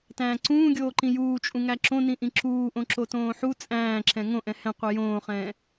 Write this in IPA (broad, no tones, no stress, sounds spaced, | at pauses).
t æ̃ː ǀ ũː ɡʲ oː ǃ ĩ j uː t͡ʃʼ ũ ŋ æ ǁ õ n ĩ ʔ ĩ ǁ uː ʔ õ ǁ o t õː ħ u t͡sʼ æ̃ː ǁ ɛ̃ ŋ õ ʔ ɛ̃ h ɛ̃ qʷ i j õː χ ɛ̃ː